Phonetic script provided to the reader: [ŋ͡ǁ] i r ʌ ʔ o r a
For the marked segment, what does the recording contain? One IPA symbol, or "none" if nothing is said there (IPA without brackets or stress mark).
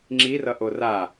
ŋ͡ǁ